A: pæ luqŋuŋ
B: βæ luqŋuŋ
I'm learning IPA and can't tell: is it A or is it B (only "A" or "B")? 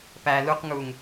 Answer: A